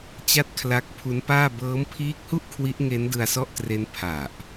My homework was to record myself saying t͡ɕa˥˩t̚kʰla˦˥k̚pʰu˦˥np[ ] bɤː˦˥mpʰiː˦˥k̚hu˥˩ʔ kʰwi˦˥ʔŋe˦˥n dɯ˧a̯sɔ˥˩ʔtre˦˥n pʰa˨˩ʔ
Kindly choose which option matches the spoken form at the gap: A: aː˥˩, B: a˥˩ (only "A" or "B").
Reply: A